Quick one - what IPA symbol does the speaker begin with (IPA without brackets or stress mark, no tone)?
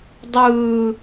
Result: dˤ